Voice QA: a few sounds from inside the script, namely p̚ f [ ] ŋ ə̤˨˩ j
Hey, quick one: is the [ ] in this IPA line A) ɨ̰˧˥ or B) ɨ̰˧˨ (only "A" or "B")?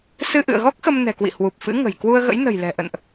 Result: A